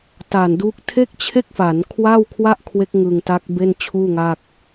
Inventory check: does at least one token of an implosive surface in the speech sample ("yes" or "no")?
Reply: no